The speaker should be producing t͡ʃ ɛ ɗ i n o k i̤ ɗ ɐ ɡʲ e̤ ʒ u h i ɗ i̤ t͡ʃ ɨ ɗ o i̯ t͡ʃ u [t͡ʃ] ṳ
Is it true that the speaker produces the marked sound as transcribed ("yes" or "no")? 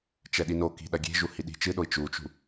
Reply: yes